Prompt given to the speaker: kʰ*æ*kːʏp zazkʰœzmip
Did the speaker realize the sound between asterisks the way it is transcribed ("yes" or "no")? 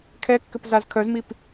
no